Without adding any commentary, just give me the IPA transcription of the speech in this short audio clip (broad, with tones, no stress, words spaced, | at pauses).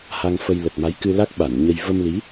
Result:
ha˧ŋfə˧j lə˨˩t̚ma˨˦jkɨ˧la˦˥k̚ ɓa˧˩n ɲə˧j və˧mli˨˦